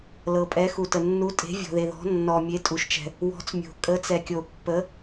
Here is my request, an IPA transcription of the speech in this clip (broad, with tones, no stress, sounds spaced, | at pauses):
l ɤ˨ pʼ ɛ˨˥ x u˨ t ə˨ nː u˨˥ tʼ e̤˨˥ vʲ ɔ̤˨ ð e˨ ð ɔ̤˨˥ nː ɔ˨ mʲ e˨˥ tʼ u˨ ʃ t͡ʃ ɛ̤˨ | w ɔ̤˨˥ t͡s mʲ o̤˨ kʼ ə˨˥ t͡s ɛ˨ kʲ o˨ pː ə˨˥